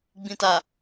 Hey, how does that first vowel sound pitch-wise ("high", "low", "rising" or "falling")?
low